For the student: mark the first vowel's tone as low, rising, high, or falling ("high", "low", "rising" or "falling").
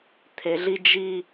low